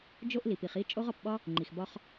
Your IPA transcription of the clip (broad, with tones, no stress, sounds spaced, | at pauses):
d͡ʒ o˦ ʔ l i˩ p i˨ χ i˥ t͡ʃʼ o˥ ʁ ɒ˨ p ɓ ɒ˥ | ŋ͡ǃ i˩ x b ɒ˦ χ